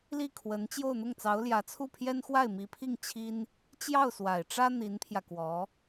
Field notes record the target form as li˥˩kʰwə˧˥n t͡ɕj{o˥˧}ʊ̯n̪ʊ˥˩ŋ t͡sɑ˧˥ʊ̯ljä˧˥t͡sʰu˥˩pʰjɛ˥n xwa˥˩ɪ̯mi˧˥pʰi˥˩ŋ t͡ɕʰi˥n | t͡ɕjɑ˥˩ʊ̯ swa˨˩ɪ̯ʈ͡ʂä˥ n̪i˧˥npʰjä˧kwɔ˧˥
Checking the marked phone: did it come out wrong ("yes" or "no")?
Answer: no